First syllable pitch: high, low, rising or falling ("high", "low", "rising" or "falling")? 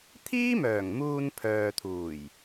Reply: high